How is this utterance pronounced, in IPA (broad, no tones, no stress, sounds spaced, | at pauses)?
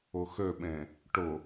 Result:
ʊ x ø ɓ ẽ | ʈ ʊ